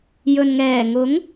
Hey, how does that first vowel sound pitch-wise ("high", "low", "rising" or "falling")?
low